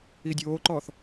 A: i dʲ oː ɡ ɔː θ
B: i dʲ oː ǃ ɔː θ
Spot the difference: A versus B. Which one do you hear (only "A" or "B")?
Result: B